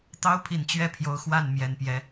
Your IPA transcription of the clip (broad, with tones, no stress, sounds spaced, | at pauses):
t̪ ɑ˥ ʊ̯ pʰ i˨˩ n t͡ɕ ɥ ɛ˥˩ pʰ j o˧˥ ʊ̯ x w a˥˩ n m j ɛ˨˩ n p j ɛ˧˥